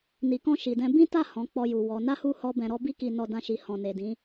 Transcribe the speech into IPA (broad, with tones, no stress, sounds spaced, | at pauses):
n i˨ k ɔ̃˧ ʃ i˨ d ɛ̃˧ b ĩ˦ t a˦˨ h ɔ̃˨˦ k͡p ɔ˧ j u˨ w ɔ˨˦ n a˦ h u˦˨ h ɔ˧ b ɛ̃˨ ɾ ɔ˧ b i˦ k i˧ n ɔ˧ d ã˧ ʃ i˨ h ɔ̃˨ n e˨ d ĩ˨˦